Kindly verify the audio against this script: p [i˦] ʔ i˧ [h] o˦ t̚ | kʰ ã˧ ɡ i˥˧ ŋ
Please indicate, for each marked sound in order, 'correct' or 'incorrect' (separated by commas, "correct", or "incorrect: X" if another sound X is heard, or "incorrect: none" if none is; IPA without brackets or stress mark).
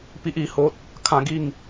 correct, correct